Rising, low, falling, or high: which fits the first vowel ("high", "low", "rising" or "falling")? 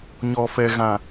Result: low